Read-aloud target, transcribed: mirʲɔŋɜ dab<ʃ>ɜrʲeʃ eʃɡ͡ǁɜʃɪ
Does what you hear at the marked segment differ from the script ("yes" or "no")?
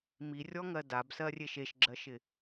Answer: yes